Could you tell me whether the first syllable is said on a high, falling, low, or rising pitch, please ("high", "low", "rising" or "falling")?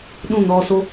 falling